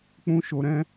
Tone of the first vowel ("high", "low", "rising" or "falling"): high